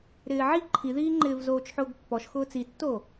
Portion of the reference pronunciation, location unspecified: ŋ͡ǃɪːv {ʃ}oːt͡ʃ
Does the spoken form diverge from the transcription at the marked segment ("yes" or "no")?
yes